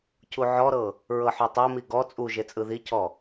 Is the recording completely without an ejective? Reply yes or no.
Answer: no